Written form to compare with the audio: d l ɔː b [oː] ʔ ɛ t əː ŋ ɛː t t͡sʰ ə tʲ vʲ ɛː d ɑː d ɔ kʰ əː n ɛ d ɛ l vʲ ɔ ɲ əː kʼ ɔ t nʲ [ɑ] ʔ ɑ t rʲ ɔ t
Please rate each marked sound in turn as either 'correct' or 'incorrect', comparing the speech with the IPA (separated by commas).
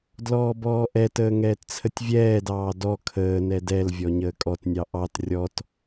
incorrect, correct